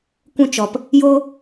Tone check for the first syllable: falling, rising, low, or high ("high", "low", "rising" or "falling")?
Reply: high